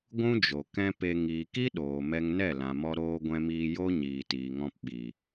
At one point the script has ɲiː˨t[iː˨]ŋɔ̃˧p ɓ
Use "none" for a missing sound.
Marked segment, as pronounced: iː˨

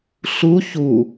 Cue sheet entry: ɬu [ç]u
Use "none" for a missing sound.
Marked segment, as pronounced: ç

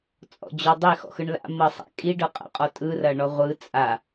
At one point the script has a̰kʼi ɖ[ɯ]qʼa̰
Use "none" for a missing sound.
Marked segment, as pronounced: ɤ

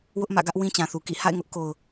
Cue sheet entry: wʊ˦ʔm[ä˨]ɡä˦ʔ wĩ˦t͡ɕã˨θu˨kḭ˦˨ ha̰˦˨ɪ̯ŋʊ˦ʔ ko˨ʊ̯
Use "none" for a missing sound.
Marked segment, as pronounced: ä̰˦˨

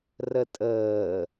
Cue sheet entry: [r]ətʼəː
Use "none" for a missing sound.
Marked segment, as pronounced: r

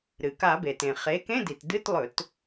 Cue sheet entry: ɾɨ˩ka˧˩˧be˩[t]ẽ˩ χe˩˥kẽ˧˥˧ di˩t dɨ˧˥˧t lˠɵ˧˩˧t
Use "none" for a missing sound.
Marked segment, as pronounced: t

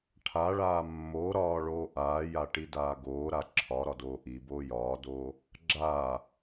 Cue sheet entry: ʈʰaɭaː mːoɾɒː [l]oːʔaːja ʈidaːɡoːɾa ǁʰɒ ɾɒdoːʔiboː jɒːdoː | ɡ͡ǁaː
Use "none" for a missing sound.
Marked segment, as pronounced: ɭ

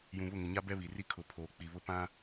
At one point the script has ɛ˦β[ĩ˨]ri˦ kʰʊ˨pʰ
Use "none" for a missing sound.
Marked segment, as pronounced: i˨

